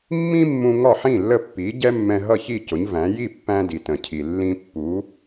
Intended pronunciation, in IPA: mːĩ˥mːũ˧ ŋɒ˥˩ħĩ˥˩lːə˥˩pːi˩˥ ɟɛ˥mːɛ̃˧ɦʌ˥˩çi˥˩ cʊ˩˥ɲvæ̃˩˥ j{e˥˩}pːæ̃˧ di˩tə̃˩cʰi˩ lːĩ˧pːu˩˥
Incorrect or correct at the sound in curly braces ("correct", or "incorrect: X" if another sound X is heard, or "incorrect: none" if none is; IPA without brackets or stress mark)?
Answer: incorrect: i˥˩